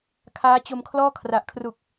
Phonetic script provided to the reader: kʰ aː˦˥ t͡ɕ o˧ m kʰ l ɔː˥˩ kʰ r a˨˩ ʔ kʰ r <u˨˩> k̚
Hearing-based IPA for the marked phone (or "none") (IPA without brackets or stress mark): u˨˩